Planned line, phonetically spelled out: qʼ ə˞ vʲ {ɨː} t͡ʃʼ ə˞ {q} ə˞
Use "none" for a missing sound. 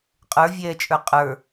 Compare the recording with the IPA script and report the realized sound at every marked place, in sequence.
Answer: ɛː, qʼ

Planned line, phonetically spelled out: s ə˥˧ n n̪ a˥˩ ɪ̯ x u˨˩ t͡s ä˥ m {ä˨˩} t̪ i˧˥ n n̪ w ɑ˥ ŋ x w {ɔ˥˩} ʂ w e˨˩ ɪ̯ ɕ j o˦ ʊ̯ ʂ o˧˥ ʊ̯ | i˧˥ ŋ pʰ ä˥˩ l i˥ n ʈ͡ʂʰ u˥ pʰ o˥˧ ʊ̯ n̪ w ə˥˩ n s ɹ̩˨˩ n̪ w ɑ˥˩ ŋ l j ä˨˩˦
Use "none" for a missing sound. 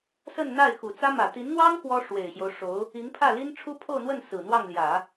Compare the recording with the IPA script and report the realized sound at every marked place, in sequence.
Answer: ä˨˩, ɔ˥

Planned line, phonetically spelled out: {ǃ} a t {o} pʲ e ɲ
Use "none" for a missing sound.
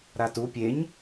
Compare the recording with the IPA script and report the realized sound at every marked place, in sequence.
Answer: ɾ, u

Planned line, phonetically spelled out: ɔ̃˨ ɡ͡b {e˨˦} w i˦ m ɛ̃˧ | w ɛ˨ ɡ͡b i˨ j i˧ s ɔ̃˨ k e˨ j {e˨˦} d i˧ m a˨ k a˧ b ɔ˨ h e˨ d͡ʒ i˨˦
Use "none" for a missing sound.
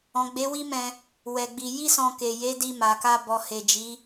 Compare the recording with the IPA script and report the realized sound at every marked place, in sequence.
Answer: e˨˦, e˨˦

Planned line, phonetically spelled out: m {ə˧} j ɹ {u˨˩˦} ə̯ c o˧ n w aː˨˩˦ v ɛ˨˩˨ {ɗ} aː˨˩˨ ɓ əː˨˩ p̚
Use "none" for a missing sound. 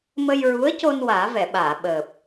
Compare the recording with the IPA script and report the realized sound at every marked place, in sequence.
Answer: ə˧, u˧˥, ɓ

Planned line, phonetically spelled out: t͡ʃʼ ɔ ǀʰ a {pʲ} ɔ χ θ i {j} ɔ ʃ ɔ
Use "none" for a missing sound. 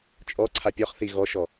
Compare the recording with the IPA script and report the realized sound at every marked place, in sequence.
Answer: pʲ, ɣ

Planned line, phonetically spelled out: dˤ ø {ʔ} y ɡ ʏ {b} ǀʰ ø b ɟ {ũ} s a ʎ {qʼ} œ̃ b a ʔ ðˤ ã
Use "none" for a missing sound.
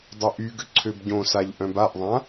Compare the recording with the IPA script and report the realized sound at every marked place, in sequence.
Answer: ʔ, none, õ, ʔ

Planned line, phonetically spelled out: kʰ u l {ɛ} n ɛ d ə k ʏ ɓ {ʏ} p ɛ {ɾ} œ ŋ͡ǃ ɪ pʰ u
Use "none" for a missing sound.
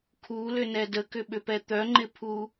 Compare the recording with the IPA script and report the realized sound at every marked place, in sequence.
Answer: ʏ, ʏ, t̪

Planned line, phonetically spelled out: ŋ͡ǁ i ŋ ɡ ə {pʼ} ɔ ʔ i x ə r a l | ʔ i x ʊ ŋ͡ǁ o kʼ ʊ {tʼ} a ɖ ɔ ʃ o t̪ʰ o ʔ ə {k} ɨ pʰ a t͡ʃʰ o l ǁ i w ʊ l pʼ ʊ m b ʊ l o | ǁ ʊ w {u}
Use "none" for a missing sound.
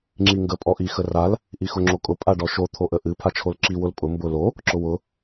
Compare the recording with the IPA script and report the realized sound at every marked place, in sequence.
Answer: pʼ, pʼ, ʔ, ʊ

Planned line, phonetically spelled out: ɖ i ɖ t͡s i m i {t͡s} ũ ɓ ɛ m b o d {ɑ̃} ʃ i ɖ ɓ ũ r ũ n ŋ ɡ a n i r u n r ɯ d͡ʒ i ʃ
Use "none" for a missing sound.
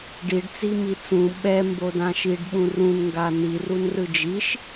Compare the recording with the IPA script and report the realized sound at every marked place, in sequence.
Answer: t͡s, ã

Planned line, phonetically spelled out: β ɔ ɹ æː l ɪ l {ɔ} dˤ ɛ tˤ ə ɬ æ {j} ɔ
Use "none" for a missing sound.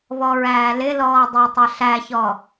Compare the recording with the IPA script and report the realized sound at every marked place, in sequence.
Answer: ɔː, ç

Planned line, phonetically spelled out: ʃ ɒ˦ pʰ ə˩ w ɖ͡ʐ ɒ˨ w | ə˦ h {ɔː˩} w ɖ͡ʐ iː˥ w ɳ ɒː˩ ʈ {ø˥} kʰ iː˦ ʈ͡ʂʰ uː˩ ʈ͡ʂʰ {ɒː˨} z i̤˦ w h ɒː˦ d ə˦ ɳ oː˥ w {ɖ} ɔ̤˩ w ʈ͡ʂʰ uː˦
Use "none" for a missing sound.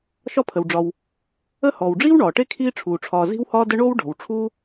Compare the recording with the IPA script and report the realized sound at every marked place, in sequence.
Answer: ɔː˩, e˥, ɒː˨, ɖ

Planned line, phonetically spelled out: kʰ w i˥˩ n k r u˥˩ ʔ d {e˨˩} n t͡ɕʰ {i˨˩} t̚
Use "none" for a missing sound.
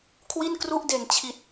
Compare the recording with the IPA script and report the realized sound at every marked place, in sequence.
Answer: e˨˩, i˨˩

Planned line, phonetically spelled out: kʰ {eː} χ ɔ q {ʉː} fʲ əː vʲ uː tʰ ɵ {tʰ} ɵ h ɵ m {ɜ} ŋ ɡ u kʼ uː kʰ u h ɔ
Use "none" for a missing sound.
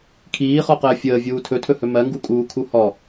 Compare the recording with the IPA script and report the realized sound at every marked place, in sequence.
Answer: iː, əː, tʰ, ɜ

